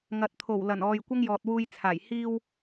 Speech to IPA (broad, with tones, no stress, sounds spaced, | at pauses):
ŋ ɐ˨ t̚ t̪ʰ o˨˩ w l ɐ˨˩ n ɔː˨ j kʷ ɐ˥ ŋ j ɔː˨ t̚ w uː˧ j t͡sʰ aː˨˩ j h iː˧ w